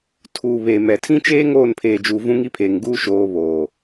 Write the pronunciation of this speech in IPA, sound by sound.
tʰ uː˨ β e˨ m ɛ˨ tʰ ĩ˦ t͡ʃ eː˦ ŋ oː˦˨ n pʰ eː˨ d͡ʒ uː˨ v ũ˦ ŋ i˦ pʰ eː˨ ŋ ɡ uː˦ ʃ oː˨˦ β oː˨

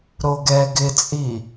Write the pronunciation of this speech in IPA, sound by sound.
ɾ o ɡ ɛ ɡ ɪ t͡sʼ i

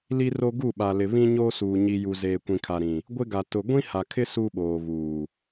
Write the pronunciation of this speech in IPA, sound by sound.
l i˦ r o˦ ɡ u˦˨ ɓ a˨ l ɪ˨ β ĩ˦ ɲ oː˦ s uː˨ ɲ i˨ j u˨ z eː˨ kʷ ĩ˨ kʰ a˨ ɾ ĩ˨ | ɡʷ ɪ˦ ɡ a˨ t ʊ˨ ɡʷ ĩ˦ h a˨ kʰ ɪ˦ s u˦ ɓ oː˨ β uː˨

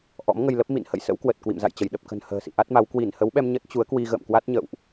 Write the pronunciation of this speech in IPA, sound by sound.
ʔ ɔ̰˧˥ m ŋ ə˧ j l ə˦˥ p̚ m ḭ˧˨ n h ə̰˧˨ j s ə̰˧˥ w k w ə˨˩ t̚ k w ḭ˧˨ m z a̰˧˨ j t͡ɕ ə˧˩ j ɗ ə˨˩ p̚ k ə̤˨˩ n h ə̤ː˨˩ s ḭ˧˨ ʔ a˦˥ t̚ m a˨˦ w k w i˧˩ n h ə˨˦ w ɓ ɛ˧ m ɲ ə˦˥ t̚ t͡ɕ u˨˦ ə̯ k w i˧ ɣ ə̰ː˧˨ m k w a˦˥ t̚ ɲ ə̰˧˨ w ʔ

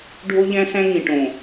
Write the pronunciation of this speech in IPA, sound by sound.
ɖʱ o˦ ʎ æ̃˦ s æ̃˦ ŋ ĩ˨ ʈ õ˨

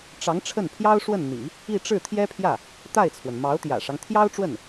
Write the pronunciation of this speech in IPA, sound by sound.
ʈ͡ʂ ɑ˧˥ ŋ ʈ͡ʂʰ ə˥˩ n pʰ j ɑ˥ ʊ̯ ʂ w ə˥˩ n n̪ ḭ˨˩˦ | i˥˧ ʈ͡ʂ ɻ̩˥˩ t̪ʰ j ɛ˥ pʰ j ä˥˩ | t̪ a˥˩ ɪ̯ t͡sʰ w ə˩ n m ɑ˧˥ ʊ̯ t̪ j ä̰˨˩ ʂ ɑ˦ ŋ t̪ʰ j ɑ˥ ʊ̯ ʈ͡ʂ w ə˥˩ n

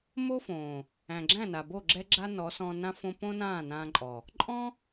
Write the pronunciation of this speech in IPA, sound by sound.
m o˦ f õː˨ | æ̃˨ ɡ͡ǁ æ̃˦˨ n a˨ b o˦˨ ɡ͡ǁ ɛ˦ ɡ͡ǁ a˦ n ɔ˨˦ s ɔ̃˧ n ã˧ f õ˧ p õ˦ n ãː˦˨ n ãː˧ ǃʼ ɔ˨ | ǃʼ ɔ̃˦

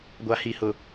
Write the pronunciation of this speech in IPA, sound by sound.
ɡʷ a˨ h i˨ h ʊ˨

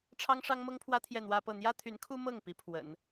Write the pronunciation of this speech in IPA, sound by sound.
ʈ͡ʂʰ ɑ˥ ŋ ʂ ɑ˥ ŋ m ɤ˥ ŋ pʰ w ä˥ t̪ʰ j ɛ˥˩ n̪ w ä˥ p ɤ˥˩ n̪ j ä˥ t̪ʰ y˧˥ n kʰ u˥ m ɤ˥˩ ŋ p i˧˥ pʰ w ə̰˨˩˦ n

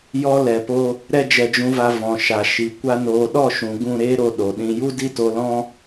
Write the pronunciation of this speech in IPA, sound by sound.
j ɔ˦ l ɛ˨ p o˧ | ɾ ɛ˦ d͡ʒ ɛ˧ d͡ʒ ũ˧ v a˧ v ɔ̃˨ ʃ a˨ ʃ i˨ kʷ a˦ n oː˧ ɗ ɔ˦˨ ʃ ũ˨ ɡ ũ˦˨ ɾ eː˦ ɾ o˦˨ ɗ o˨ ɗ ĩ˧ j u˦ d i˦ t o˧ l ɔ̃˦

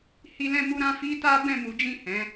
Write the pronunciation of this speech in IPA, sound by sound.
h i˧ l ɛ̃˧ m u˧ ɾ ã˧ f i˦ t a˦ b ɛ̃˦˨ m u˨˦ d͡ʒ ĩ˦˨ h ɛ̃˨˦

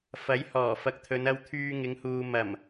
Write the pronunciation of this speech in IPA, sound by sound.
f ɐ˨˥ j h ɔː˨˩ f ɐ˨ k̚ t̪ʰ ɵ˨˧ n ɐ˧ w t̪ʰ yː˧ ŋ ɪ˨˧ ŋ h uː˨ m ɐ˨˩ m

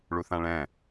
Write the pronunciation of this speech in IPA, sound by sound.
ɭ u θ ã ɭ ɛ̃

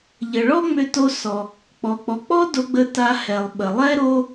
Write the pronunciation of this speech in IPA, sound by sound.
ʎ ə˩ ɭ ɔ˥ ŋ͡m ʏ˧ t o˧ s ɔ˩ | k͡p ɔ˩ k͡p ɔ˩ k͡p ɔ˥ d o˧ ɡ͡b ə˧ t a˧ h ɛ˩ lˠ ɓ ə˩ lˠ ɛ˥ ɾ o˥

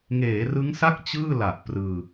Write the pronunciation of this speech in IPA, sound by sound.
ŋ eː˩˦ r ɯ˦˥ ŋ s a˥˩ k̚ t͡ɕ ɯː˥˩ l a˨˩ ʔ p r ɯː˧

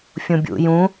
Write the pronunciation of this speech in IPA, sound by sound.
fʲ ũ bʲ ṵ j ũ

